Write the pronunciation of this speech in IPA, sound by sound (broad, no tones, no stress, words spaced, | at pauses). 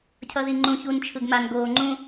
cʰʌðiŋ͡ǃũ çunt͡ʃʰɯɡman ɡoːŋ͡ǃũ